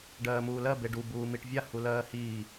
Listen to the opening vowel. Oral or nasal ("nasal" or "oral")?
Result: oral